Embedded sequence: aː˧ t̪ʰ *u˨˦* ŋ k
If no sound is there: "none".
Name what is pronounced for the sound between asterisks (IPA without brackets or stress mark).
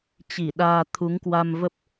u˨˦